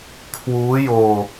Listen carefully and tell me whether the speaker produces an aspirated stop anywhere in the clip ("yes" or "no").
yes